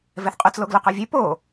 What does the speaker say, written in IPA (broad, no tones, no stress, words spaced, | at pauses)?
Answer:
vɛθqʼut͡sloɡluq œvʲʉ po